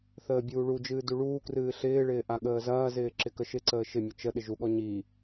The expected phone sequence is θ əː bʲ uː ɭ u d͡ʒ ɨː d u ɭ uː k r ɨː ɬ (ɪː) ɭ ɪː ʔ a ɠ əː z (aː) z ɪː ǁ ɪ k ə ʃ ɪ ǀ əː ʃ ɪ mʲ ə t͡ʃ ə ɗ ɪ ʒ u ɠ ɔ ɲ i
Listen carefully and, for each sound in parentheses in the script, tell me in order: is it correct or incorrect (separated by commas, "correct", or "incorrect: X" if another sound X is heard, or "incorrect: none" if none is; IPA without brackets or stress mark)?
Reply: correct, incorrect: ɐː